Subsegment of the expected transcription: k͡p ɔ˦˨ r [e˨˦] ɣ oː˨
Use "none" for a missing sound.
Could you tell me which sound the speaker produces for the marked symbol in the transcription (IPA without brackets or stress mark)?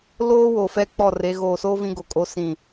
e˨˦